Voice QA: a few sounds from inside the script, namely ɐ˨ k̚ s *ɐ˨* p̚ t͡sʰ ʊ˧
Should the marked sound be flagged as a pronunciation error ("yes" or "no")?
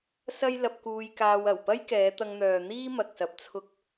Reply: yes